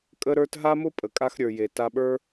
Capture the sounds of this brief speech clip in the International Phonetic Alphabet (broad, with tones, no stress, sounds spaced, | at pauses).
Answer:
kʼ ə˧ ɾ ə˞˧ t ɦ a˦ m ʊ˦ pʼ ə˨ kʼ a˧ x ɾʲ ə˞˨ j e˨ t a˧ ɓ ə˞˦